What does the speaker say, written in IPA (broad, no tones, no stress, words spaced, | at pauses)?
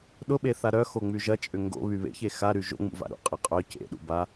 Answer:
ɗʊɓeθa ɾœxoŋ͡my ʒɐt͡ʃʼʏ ŋɡo̰βy βḛçe xaɾy ʒo̰ŋ͡mṵva̰ ɾṵqʼe qʼœ cḛɗṵ ba